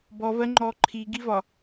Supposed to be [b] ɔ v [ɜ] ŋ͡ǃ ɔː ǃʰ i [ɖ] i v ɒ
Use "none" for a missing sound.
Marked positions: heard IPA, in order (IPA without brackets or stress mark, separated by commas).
b, ɜ, ɡ